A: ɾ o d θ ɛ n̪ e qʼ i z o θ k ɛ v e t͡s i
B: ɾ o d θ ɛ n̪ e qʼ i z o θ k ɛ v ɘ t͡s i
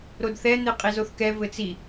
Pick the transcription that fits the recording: B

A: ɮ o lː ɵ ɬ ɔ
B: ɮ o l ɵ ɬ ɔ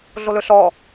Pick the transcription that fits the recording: B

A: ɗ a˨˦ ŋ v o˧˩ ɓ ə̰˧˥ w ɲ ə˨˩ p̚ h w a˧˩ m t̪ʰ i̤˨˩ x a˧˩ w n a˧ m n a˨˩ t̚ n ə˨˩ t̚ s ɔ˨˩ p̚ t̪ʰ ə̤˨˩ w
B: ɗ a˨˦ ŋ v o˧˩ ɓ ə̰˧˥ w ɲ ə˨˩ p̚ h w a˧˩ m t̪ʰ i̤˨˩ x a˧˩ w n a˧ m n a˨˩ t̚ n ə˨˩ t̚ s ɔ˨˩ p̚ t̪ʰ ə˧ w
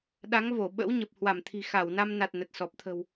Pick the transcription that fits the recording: A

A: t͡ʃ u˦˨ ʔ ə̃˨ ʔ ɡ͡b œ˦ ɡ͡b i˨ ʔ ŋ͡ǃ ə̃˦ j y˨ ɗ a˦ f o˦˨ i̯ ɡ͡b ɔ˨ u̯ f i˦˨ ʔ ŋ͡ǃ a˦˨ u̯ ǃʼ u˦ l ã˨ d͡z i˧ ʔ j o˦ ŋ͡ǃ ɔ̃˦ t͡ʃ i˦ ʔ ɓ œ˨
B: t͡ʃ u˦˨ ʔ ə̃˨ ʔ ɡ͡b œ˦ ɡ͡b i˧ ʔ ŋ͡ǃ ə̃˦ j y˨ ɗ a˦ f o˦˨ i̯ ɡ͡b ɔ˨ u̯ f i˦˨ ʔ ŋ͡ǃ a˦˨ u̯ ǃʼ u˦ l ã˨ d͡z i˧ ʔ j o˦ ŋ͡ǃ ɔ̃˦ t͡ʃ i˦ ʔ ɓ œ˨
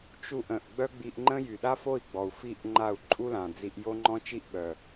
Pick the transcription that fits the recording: B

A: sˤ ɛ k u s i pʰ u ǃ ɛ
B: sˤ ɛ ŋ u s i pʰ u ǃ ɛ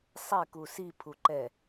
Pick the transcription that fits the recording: A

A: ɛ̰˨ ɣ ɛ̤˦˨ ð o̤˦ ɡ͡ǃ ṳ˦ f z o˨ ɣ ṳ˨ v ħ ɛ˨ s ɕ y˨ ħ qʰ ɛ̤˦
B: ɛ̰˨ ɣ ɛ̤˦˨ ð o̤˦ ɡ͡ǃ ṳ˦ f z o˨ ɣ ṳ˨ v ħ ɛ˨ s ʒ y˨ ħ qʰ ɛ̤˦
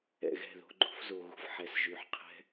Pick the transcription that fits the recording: B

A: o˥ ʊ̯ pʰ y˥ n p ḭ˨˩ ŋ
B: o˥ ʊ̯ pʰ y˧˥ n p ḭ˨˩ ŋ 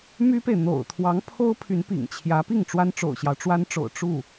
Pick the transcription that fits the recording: B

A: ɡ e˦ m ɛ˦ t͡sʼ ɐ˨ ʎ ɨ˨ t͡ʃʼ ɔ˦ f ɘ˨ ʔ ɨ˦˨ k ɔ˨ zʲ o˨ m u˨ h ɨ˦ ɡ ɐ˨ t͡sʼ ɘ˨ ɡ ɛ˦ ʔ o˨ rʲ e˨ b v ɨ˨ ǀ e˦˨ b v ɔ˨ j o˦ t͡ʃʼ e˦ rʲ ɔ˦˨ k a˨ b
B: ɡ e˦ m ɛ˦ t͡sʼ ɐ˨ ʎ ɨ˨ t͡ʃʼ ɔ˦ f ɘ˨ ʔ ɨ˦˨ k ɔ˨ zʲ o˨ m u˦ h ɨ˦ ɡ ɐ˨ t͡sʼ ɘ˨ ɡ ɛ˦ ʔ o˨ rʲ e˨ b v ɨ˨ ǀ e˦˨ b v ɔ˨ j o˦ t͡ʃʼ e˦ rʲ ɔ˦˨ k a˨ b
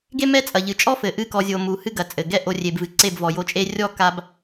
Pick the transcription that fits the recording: A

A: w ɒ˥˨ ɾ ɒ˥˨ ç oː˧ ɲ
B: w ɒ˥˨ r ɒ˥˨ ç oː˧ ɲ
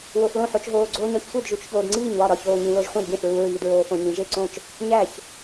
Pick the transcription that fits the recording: A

